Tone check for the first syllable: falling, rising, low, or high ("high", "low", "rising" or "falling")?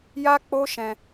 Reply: high